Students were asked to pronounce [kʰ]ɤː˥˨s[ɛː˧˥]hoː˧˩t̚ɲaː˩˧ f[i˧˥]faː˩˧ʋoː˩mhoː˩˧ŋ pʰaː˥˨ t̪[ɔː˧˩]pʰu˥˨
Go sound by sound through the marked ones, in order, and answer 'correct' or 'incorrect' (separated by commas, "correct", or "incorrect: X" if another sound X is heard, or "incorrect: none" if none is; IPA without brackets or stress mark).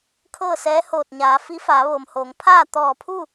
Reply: correct, correct, correct, correct